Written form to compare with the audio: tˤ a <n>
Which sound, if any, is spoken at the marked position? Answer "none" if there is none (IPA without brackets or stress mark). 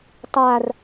r